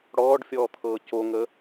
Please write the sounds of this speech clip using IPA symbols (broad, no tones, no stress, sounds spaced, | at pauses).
ɽ ɔː ɖ fʲ ɔː t̪ʰ ɤː c o ŋ ə